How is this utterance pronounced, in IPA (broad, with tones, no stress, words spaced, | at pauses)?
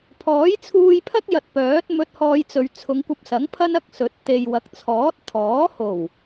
pʰɔː˨˥jt͡sʰuː˧jpʰɐ˥k̚ jɐ˧t̚pœː˨˥t̚ mɵ˧t̚hɔː˧jt͡sɵ˨ɥ t͡sʰʊ˨˧ŋkʷɐ˧p̚sɐ˨˥ŋpʰɐ˥n ɐ˥k̚sɵ˨˥t̚ t̪e˨jwɐ˨k̚t͡sʰɔː˨˥t̚ t̪ʰɔː˨˥ho˨˩w